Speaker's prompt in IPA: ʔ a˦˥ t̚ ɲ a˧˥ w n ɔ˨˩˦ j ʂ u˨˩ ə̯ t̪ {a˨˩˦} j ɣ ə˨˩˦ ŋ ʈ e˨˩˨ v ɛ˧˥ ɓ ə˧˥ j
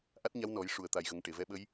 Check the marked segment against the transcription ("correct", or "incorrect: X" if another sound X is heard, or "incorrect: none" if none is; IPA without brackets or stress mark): incorrect: a˨˩